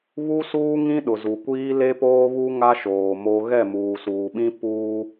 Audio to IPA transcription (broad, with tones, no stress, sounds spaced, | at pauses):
β u˦ s uː˦ ŋ ĩ˦ ɗ ʊ˨ z u˨ kʷ iː˦ l e˦ p oː˦ β u˦ ŋ a˦ ʃ oː˨ m o˦ ɣ ɛ˦˨ m uː˨ s uː˨ ɓ ĩ˦ p uː˦